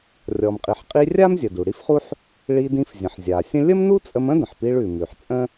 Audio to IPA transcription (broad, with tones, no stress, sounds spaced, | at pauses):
rʲ ɔ˩ m qʼ i˩ ħ qʼ i˧ rʲ a˥ m zʲ ə˩ d u˩ ɽ i˥ f χ u˥ ħ | ɭ i˧ d ĩ˧ f zʲ ə̃˩ ħ zʲ a˩ sʲ ə̃˥ lʲ ə˥ m n u˥ t͡sʼ ə˧ m ə̃˥ d ə̃˩ ħ p i˧ ɭ ʉ˩ m ʉ˩ ħ t͡sʼ ə̃˥